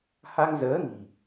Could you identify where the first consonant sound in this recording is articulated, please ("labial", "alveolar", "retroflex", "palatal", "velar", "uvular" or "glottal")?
glottal